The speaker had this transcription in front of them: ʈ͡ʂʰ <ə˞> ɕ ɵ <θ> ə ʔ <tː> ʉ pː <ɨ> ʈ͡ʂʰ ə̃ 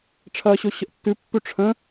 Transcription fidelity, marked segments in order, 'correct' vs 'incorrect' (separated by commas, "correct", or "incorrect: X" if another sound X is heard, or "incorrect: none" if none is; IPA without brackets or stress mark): incorrect: ɐ, incorrect: ɕ, correct, incorrect: ʉ